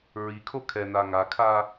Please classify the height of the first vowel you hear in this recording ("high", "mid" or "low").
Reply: high